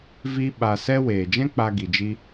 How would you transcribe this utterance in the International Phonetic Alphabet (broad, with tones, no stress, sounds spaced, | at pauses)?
v i˧ ɓ a˧ s ɛ˦ w eː˨ d͡ʒ ɛ̃˦ k͡p a˧ ɡ i˨ d͡ʒ i˦